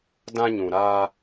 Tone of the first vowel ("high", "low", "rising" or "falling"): high